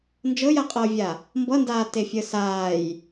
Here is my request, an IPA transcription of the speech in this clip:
n d͡ʒ ɤ j a qʼ ɤː vʲ a | m b ʌ n d aː t e fʲ əː s aː j

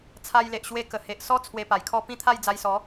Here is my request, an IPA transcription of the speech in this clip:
t͡sʰ a˧ j l e˨ ʔ ɕ w e˧ k ə˨˩ h e˨ ʔ s ɔ˦ t͡sʰ w e˧ p a˨˩ j kʰ ɔ˥˧ p ĩ˥˧ t̪ʰ a˥˧ j d͡z a˧ j s ɔ˨˦

